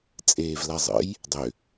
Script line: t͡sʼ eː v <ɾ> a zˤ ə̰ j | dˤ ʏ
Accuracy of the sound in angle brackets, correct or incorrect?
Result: incorrect: l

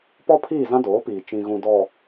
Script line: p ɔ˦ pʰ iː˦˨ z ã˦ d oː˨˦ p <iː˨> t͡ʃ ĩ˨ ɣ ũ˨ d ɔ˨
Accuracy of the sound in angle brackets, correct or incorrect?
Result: correct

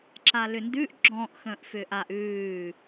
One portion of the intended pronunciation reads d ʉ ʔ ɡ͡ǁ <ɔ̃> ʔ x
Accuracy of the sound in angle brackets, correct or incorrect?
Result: correct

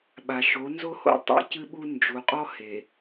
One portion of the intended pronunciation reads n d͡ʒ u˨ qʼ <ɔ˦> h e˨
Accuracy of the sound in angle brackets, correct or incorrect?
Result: correct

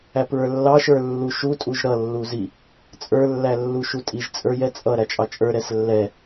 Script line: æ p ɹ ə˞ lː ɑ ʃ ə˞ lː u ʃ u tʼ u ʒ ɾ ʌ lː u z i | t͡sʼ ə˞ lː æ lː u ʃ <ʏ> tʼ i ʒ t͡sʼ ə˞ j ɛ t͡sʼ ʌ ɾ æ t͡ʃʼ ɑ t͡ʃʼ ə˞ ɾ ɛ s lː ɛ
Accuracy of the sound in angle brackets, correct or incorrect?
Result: incorrect: u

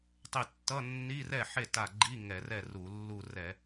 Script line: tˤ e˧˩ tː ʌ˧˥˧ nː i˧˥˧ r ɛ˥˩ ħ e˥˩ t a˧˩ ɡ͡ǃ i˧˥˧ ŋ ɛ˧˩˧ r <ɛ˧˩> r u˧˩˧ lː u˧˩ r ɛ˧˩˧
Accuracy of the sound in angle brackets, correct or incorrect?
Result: incorrect: ɛ˥˩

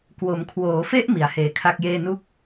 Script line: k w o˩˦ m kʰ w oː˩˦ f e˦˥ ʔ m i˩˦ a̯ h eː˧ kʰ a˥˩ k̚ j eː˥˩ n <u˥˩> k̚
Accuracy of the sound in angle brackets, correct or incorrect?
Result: correct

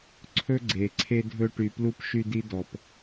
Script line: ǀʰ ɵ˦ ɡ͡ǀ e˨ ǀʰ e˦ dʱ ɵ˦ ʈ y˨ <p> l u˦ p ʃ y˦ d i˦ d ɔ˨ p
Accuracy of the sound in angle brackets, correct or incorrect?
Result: correct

